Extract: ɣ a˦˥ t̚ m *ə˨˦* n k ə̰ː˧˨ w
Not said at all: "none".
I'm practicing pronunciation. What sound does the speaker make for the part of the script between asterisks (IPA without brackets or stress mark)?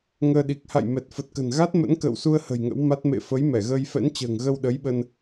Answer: ə̰˧˥